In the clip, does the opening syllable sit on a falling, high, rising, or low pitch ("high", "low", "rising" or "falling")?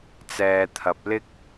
low